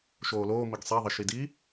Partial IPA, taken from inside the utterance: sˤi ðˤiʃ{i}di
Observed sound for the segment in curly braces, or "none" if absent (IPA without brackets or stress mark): i